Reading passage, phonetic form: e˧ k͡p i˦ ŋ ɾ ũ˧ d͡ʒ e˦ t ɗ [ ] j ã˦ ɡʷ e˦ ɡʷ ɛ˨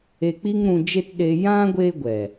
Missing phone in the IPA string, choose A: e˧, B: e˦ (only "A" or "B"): A